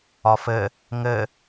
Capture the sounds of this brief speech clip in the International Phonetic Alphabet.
ɒ f ɘ | ŋ ɘ

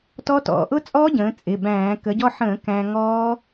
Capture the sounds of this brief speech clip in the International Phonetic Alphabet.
t ɔ˦˥ t ɔ̰˩˧ ʔ ʊ˦˥ t͡sʼ ɔː˦˥ ɟ ə̃ː˩˧ t͡sʼ ɪ˩˧˩ b æ̃ː˧˩˧ k ə˩˧ ɟ ɔ˧ ħ ə̃ː˧˩˧ k æ̃ː˧ ŋ ɔː˦˥

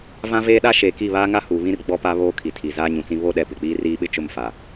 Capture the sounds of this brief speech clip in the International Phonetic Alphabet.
v ã˦ v eː˦ ɗ a˦ ʃ eː˨ k i˦˨ β aː˦ ŋ a˦ h u˨ β ĩ˦ r ɡ͡b ɔ˦ p a˦ β oː˦ kʰ i˨ tʰ i˨ z aː˦ ɲ ũ˨ t͡s ĩ˦ β o˦ ɗ ɛ˨ p ɪ˨ k͡p iː˦ r iː˦ ɓ ɪ˦ t͡ʃ ʊ˦˨ m f a˨

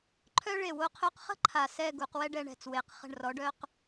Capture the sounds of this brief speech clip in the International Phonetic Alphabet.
ǃʰ œ˥ ɭ e˧˩ w o˧ qʰ œ˧ q χ ə̤˥ ǃʰ a˧˩ s ɛ˥˧ ɡ u˩˧ q w ɛ˥ ɖ ɛ˧ ɳ ɛ̤˧˩ t͡s w e˩˧ q χ ə̤˧˩ ɳ r ɔ˩˧ ɖ œ˧ q

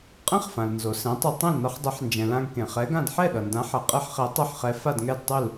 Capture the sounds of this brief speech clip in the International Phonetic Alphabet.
qʼ ɛ̃˥ χ f ã˩ l n z o˩ s ɛ̃˩˥ tˤ u˧ tˤ ɛ̃˥˩ l n ʌ˧ χ dˤ ɯ˩˥ ħ n d͡ʒ ɛ̃˩ l ã˧ ɡ k ẽ˩ χ ɛ˩˥ ɡ ã˥˩ d ħ ɛ˥˩ ɗ ʌ˩ n d ã˩˥ ħ ʌ˩ qʼ ɛ˥ ħ χ e˩˥ tˤ e˥˩ ħ χ ɛ˩˥ f a˥˩ d ŋ ɛ˥˩ d tˤ u˥˩ l

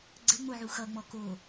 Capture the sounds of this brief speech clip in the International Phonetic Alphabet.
ɡ͡ǀ ɘ ŋ͡m o ʕ u x ʌ ŋ͡m ɔ k o

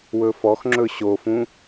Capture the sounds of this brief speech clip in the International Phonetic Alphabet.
w ɵ f ɔ x ŋ͡ǁ ɵ ɕ o f ũ

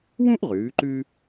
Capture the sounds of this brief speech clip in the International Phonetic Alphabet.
w ũ˥ ʔ ʁ ʉː˩˧ ǃ ʉ˧

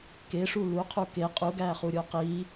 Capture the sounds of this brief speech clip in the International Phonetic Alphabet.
k e ʂ u l u qʰ u k e qʼ u ɡ æ χ u ɾʲ o q i

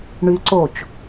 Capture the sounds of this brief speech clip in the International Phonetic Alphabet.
ɳ y ǀ oː t͡ʃ

